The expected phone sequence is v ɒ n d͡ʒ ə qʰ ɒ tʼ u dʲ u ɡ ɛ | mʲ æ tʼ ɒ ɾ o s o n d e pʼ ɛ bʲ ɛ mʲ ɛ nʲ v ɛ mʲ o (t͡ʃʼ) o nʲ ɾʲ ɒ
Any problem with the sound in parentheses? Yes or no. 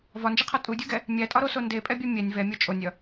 no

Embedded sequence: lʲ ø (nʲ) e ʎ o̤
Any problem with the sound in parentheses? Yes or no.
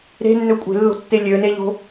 yes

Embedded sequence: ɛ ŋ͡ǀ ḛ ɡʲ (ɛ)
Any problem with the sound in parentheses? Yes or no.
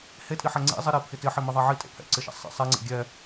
no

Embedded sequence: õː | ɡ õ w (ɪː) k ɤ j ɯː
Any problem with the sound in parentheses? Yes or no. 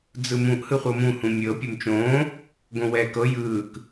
yes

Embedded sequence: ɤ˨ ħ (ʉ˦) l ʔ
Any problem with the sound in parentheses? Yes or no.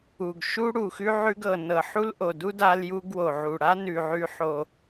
yes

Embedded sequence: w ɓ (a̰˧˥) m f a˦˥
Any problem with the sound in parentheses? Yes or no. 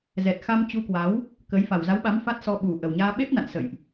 yes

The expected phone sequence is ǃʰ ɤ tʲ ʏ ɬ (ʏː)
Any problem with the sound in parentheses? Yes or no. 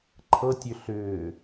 no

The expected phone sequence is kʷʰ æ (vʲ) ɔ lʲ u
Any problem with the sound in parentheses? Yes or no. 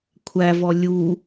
yes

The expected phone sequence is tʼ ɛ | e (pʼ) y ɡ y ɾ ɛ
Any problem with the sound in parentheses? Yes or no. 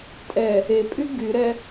no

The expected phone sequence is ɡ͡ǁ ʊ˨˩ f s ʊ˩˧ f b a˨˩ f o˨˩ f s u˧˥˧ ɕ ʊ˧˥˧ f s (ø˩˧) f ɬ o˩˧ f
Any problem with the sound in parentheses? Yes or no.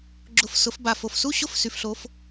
yes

